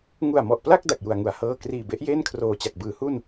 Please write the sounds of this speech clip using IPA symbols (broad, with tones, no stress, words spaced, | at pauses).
ŋu˨˩a̯mɔ˨˩ʔpla˥˩k̚ da˨˩k̚ju˨˩a̯ŋu˩˦a̯ hɤː˥˩ kriː˨˩be˦˥ʔjeː˥˩n kʰroː˨˩t͡ɕa˨˩k̚bɯː˩˦hu˥˩n